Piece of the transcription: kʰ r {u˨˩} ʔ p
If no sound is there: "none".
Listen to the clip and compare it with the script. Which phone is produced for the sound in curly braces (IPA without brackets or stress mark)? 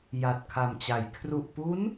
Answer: u˨˩